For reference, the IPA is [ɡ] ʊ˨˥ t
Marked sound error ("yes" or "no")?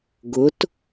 no